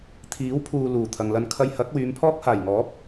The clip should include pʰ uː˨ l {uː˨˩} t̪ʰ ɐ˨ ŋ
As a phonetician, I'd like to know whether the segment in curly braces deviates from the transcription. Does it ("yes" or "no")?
no